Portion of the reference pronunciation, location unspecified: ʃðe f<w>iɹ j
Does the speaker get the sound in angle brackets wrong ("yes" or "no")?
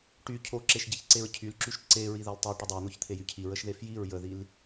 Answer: yes